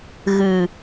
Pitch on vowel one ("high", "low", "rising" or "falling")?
low